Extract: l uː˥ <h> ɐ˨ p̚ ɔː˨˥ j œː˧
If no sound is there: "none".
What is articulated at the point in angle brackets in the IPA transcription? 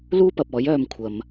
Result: p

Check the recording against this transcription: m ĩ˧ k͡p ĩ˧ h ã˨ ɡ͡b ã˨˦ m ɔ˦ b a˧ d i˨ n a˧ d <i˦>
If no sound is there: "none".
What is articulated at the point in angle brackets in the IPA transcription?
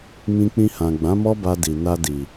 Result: i˨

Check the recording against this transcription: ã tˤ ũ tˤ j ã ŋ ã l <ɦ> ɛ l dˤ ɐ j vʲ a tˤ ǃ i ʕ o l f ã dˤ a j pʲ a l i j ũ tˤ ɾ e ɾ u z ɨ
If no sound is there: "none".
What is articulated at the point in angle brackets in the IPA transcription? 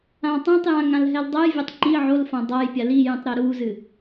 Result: ɦ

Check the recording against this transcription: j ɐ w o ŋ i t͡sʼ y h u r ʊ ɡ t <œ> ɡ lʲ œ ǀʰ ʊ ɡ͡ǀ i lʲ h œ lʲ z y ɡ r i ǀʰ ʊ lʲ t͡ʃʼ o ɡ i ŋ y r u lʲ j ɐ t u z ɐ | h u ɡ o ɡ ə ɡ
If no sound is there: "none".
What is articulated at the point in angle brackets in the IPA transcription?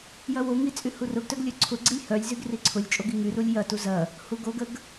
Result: œ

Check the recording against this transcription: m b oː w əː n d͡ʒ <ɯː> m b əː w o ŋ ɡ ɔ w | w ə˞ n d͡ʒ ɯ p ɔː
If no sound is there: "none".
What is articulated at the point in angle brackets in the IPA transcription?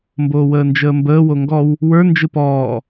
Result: əː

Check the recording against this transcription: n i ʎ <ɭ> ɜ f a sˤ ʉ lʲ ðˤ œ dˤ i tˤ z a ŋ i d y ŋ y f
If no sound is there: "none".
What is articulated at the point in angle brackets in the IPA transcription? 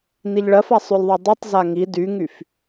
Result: ɭ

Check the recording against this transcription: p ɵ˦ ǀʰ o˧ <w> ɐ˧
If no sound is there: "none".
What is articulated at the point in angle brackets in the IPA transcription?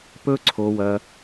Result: w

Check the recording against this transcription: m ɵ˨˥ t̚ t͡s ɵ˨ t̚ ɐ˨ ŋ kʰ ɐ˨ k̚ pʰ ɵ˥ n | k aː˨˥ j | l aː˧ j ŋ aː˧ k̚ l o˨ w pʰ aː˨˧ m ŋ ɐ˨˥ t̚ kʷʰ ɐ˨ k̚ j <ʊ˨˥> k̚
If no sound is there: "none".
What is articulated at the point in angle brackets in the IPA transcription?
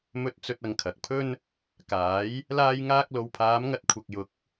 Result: ʊ˨˥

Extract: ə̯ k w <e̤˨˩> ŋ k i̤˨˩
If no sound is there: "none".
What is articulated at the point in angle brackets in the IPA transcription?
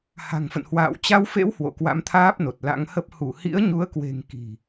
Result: e̤˨˩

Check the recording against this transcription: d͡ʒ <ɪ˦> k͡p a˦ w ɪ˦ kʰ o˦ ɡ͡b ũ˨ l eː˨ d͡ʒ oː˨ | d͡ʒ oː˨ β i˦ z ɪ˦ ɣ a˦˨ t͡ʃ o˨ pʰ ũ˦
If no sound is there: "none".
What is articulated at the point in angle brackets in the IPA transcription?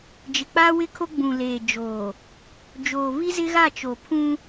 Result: ɪ˨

